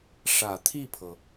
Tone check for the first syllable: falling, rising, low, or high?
low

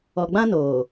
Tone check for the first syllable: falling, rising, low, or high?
low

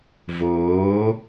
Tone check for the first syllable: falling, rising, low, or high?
rising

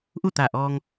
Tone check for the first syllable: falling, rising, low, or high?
falling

